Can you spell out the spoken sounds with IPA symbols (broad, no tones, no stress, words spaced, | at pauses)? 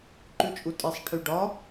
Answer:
ǃʉt͡ʃʼutʼesˤ ʈʰyɖɒ